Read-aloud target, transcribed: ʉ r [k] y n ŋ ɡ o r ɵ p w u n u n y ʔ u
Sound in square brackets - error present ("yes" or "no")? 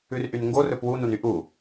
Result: yes